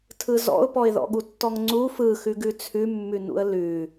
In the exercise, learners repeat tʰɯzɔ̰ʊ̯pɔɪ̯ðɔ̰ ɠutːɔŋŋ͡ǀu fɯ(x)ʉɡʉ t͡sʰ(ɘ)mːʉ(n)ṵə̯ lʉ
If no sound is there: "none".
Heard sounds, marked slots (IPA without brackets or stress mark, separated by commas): x, ʉ, n